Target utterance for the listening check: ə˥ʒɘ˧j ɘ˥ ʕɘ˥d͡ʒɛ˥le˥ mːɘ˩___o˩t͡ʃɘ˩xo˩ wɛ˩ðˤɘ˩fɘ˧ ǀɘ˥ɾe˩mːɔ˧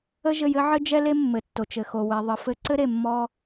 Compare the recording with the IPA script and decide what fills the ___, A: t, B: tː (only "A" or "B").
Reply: B